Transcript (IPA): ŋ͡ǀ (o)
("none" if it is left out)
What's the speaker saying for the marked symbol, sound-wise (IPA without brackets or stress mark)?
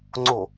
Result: o